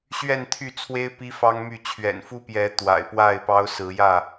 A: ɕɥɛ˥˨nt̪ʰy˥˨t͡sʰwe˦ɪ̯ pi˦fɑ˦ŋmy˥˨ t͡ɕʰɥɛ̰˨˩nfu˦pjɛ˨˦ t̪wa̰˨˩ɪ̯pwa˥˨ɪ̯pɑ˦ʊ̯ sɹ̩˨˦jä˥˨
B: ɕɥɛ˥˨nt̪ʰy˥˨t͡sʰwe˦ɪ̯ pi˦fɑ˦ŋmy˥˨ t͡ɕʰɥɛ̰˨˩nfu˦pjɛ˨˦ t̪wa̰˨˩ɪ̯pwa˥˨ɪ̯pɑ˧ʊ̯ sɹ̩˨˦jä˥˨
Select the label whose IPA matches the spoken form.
A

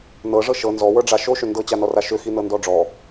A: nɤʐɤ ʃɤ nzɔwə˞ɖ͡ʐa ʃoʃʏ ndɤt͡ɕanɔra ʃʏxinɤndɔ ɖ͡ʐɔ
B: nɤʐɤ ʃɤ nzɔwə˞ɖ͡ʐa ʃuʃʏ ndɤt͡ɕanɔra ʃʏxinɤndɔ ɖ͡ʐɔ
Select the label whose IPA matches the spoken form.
A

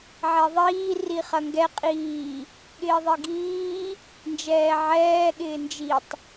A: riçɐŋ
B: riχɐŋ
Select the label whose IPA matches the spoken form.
B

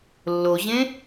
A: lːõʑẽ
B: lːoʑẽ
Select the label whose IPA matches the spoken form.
B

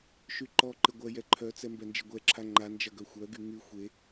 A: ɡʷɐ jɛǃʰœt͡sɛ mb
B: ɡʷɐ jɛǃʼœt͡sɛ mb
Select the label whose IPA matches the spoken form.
A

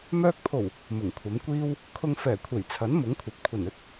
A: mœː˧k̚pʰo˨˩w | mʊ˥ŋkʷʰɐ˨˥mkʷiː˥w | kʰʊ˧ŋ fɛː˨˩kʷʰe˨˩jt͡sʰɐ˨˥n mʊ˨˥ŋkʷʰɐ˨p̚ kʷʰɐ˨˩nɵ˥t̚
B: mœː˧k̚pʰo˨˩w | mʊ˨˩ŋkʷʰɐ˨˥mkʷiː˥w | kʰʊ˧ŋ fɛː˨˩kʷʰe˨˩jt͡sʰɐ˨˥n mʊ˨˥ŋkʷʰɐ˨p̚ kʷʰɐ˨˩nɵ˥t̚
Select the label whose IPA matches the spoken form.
B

